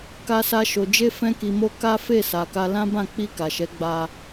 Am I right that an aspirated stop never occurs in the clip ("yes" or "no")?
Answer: yes